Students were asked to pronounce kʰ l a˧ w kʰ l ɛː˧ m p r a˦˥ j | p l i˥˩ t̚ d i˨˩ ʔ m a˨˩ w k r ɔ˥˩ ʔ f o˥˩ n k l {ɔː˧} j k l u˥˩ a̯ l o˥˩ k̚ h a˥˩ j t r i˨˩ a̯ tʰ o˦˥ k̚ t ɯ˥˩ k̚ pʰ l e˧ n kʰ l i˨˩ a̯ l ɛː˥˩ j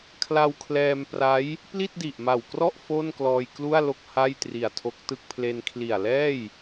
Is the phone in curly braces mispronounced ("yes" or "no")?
no